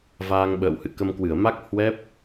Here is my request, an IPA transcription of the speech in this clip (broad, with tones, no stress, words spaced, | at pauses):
vaː˧ŋɓə̰ː˧˨w hɨ̰˧˨kə˧mkwɨ˧˩ə̯ ma˦˥k̚ hwɛ˦˥p̚